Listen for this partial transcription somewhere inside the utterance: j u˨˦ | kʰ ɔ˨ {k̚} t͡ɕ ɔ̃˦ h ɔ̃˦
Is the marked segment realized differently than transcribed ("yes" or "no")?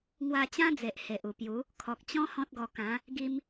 no